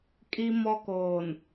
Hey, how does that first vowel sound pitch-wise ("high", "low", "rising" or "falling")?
high